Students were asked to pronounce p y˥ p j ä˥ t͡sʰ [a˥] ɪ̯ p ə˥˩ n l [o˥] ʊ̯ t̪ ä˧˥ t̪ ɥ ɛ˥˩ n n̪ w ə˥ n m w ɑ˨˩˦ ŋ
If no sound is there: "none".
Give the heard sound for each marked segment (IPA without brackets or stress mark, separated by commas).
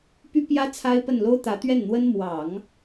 a˥, o˥